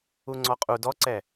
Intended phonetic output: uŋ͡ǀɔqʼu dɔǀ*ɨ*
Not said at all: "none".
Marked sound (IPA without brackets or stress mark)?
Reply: ɛ